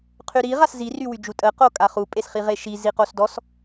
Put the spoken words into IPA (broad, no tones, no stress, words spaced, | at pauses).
qʰyɾi ʁaszi rywyd͡ʒutʼə qokʼaχu pʼesχiʁeʃi ziqosdɔs